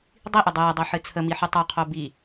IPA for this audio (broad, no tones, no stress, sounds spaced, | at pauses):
dˤ i ʔ ʏ dˤ əː dˤ o ħ ɨ t͡sʰ ə m i ħ y tˤ o qʰ o b i